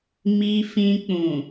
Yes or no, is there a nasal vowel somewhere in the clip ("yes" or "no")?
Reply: yes